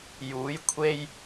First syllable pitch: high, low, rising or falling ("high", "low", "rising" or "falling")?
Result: rising